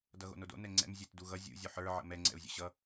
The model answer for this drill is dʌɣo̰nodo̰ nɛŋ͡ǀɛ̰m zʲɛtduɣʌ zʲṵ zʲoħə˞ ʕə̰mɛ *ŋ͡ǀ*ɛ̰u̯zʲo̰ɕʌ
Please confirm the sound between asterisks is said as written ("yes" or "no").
yes